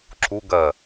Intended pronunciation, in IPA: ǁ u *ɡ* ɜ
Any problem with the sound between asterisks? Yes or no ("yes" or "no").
no